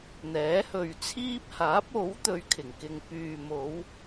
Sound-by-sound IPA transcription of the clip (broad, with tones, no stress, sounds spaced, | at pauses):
n̪ ɛː˨˥ h ɵ˨ ɥ t͡sʰ iː˥ p̚ h aː˨˥ p̚ o˨˥ w t̪ ɵ˨˧ ɥ kʰ ɪ˨˩ ŋ k ɪ˨ ŋ p yː˨ m o˨˧ w